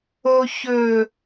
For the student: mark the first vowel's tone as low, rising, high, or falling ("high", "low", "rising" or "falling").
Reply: low